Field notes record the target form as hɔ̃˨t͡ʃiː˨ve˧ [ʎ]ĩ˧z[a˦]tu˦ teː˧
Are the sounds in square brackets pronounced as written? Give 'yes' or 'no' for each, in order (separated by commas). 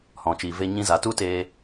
no, no